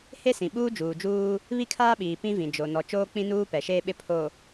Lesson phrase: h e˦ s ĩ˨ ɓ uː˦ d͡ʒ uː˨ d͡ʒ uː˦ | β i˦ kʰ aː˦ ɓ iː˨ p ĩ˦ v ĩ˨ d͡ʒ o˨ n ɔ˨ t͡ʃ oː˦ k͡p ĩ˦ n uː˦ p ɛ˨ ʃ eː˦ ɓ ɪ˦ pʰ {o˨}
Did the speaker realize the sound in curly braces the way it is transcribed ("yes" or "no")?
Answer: yes